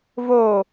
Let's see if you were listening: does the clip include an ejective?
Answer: no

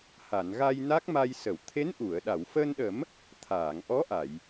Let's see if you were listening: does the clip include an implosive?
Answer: yes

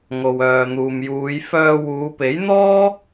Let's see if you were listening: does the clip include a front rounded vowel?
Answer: yes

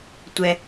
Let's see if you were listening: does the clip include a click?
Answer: no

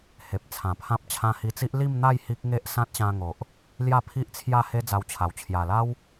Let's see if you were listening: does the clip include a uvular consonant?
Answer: no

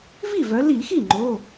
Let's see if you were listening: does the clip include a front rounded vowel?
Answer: yes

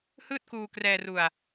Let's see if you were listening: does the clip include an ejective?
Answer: no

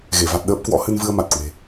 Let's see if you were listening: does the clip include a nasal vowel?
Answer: no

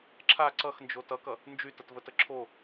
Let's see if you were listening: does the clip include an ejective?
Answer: no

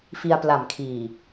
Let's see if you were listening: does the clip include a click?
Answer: no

